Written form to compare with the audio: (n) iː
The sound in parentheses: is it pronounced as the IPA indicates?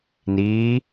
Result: yes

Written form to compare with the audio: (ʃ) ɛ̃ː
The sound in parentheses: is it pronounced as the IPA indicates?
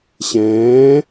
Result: no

